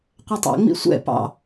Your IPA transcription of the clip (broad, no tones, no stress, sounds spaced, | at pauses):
qʷ æ tˤ æ̰ ŋ͡m ḭ sʷ ɛ̰ p ɑ̰